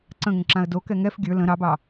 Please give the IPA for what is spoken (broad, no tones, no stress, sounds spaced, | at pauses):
ǀ ə̃ ŋ ə̃ ǁ ã ə̯ d o k ɛ ŋ ɛ f ɡʲ ə˞ l ə̃ ɾ ɑ b ɑ